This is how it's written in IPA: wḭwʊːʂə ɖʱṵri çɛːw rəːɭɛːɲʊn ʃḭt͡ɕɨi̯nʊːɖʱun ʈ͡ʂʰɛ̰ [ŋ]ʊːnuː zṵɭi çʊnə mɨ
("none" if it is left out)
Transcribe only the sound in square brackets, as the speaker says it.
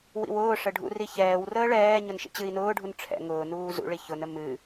ŋ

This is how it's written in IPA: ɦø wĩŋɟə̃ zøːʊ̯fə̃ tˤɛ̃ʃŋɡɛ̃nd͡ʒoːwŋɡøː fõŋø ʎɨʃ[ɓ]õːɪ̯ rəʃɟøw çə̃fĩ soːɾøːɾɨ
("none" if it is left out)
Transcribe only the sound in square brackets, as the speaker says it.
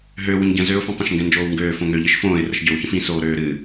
f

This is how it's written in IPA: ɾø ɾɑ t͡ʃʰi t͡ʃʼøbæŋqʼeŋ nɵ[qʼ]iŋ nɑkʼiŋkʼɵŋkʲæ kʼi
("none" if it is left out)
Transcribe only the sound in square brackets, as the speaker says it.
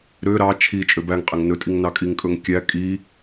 tʼ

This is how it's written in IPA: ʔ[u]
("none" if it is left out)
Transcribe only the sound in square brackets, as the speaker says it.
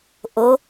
o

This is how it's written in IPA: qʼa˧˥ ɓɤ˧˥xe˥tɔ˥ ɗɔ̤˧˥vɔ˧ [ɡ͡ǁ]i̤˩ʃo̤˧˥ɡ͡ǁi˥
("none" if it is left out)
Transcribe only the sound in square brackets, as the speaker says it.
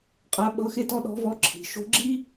ǁʰ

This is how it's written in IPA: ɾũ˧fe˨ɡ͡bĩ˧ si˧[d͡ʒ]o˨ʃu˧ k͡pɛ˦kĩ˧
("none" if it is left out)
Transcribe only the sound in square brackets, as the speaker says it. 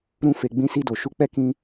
d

